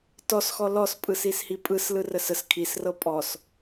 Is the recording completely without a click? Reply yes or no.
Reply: yes